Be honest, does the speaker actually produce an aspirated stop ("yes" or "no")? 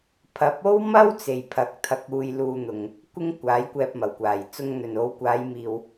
yes